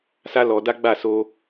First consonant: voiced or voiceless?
voiceless